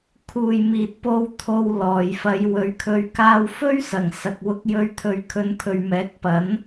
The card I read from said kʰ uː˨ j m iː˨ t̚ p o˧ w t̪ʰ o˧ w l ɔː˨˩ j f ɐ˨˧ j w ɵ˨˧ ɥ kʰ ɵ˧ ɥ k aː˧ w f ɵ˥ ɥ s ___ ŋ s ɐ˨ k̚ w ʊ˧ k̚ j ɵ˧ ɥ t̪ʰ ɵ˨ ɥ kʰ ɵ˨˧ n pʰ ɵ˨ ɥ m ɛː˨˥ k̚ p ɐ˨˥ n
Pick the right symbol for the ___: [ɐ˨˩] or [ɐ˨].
ɐ˨˩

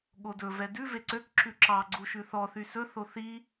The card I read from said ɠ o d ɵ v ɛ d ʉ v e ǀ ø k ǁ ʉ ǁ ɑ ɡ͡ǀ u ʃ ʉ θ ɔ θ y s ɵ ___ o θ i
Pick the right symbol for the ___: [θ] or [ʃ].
θ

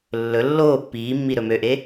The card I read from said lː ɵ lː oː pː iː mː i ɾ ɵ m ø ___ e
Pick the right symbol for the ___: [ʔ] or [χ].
ʔ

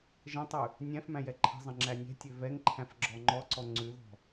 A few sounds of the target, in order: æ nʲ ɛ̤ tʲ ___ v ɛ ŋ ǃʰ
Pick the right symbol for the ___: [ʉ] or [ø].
ø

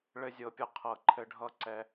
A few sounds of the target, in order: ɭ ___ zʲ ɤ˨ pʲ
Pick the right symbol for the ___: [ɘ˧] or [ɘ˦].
ɘ˧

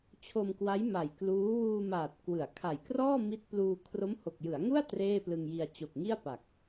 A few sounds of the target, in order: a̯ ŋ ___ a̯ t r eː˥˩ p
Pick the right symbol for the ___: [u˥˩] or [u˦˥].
u˥˩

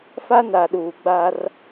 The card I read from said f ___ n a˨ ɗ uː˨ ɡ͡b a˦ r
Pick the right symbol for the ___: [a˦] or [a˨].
a˦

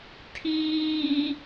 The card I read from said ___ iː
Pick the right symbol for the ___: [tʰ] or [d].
tʰ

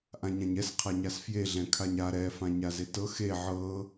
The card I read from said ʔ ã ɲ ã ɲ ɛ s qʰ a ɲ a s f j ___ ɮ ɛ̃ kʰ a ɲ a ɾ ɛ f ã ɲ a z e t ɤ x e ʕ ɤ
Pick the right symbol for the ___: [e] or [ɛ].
e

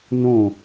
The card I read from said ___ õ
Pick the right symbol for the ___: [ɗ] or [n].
n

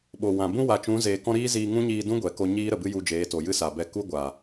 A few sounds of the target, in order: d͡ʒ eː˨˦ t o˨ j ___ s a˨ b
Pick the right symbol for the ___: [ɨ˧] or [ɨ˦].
ɨ˦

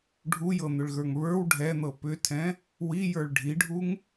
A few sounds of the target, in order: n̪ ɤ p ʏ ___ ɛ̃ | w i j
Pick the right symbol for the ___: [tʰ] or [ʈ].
tʰ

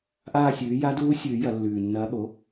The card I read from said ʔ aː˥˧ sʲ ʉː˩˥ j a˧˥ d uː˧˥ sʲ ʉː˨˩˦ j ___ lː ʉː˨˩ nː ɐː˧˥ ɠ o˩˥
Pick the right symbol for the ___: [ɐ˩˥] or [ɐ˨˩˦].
ɐ˨˩˦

